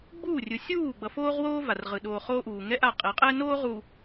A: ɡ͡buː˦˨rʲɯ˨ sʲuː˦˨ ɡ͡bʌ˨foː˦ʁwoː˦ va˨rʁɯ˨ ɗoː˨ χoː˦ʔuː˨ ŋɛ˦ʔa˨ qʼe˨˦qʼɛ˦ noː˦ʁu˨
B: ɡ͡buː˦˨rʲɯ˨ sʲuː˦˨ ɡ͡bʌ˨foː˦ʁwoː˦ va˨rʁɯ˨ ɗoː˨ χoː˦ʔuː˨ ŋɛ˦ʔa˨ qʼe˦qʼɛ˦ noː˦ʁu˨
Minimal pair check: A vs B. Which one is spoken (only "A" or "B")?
A